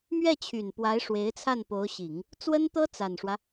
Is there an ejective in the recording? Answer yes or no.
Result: no